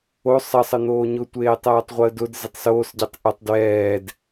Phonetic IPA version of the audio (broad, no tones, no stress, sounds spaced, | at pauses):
o sˤ ə sˤ ə n̪ oː ɲ ʊ tʷ eː tˤ ɛː tˤ ʁʷ əː d ʊ d z ɪ tˤ s oː s ɟ e tˤ ʔ ə tˤ d w ɛː d